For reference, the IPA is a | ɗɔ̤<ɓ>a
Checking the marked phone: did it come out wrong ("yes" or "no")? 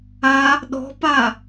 yes